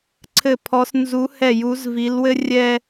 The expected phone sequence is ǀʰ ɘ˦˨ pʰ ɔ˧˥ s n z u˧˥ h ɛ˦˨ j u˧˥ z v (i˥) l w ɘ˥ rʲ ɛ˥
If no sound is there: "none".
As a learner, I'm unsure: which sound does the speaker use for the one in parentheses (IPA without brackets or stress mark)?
i˧˥